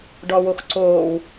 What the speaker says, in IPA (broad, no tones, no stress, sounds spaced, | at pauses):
ɖ ɔ w o x ǀ oː w